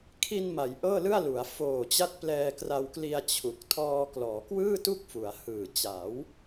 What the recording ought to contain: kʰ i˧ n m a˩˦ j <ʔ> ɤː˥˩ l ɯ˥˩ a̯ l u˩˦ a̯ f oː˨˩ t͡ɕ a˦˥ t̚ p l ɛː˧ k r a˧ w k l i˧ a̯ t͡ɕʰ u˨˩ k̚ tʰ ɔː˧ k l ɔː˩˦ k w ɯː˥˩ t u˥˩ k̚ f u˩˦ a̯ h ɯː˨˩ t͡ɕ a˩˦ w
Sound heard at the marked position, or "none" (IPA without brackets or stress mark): ʔ